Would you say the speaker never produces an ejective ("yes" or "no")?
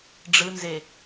yes